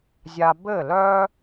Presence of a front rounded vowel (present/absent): present